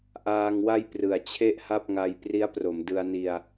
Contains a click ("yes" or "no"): no